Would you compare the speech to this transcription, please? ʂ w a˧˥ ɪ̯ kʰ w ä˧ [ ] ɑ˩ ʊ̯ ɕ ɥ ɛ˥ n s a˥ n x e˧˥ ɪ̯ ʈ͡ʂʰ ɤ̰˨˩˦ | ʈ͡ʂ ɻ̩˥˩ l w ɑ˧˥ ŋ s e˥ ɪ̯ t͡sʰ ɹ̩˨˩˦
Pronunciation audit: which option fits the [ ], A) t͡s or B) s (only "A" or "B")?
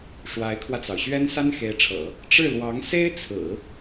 A